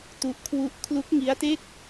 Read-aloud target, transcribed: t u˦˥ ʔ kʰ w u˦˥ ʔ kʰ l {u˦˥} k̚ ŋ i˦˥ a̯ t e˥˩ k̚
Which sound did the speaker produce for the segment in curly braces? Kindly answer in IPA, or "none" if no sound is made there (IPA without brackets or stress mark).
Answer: u˦˥